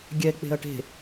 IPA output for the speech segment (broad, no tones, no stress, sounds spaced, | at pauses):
ɡʲ ɛ k͡p e̤ ɐ̯ ʈ e̤